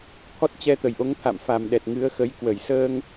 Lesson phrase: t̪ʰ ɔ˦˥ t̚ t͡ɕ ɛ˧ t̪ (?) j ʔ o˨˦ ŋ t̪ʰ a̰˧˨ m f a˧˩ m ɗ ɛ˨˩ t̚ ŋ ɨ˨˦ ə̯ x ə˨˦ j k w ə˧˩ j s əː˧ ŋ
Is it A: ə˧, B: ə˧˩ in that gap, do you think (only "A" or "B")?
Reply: B